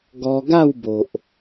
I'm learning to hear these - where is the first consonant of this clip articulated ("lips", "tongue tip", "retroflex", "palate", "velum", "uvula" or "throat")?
velum